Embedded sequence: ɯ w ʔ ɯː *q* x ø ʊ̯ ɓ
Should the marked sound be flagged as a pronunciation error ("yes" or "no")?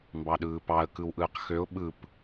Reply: no